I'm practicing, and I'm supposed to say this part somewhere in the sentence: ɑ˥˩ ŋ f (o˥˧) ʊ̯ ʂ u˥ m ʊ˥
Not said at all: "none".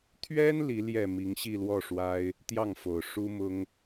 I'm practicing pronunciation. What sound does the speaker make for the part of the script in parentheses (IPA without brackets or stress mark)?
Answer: o˨˩